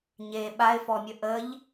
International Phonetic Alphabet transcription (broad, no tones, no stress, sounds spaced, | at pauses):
ɲ e ɓ a ɪ̯ f ɔ mʲ ə ʔ ə ʎ